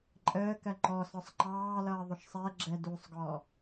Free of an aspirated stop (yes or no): yes